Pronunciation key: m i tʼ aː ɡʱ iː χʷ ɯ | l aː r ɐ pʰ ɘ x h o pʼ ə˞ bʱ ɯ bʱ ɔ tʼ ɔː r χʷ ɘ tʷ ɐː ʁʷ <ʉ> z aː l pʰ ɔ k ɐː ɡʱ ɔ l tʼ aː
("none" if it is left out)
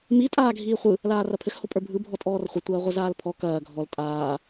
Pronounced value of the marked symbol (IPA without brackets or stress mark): ɘ